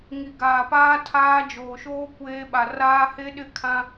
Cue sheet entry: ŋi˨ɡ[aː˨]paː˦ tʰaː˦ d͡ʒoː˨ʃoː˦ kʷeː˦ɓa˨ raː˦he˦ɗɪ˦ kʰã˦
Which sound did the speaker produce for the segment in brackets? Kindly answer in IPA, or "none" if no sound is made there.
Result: aː˨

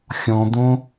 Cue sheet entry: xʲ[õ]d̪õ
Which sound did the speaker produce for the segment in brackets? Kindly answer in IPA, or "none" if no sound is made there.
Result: ɔ̃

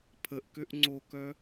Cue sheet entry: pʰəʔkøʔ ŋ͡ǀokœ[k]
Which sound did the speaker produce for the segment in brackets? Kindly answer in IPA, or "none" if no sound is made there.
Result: none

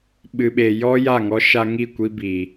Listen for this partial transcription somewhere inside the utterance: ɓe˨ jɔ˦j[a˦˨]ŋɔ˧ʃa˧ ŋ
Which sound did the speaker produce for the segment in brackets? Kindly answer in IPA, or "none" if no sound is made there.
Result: a˦˨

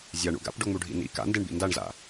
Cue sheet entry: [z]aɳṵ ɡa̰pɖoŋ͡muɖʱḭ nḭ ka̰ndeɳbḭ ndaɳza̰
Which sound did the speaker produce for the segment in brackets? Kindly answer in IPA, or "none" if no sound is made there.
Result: zʲ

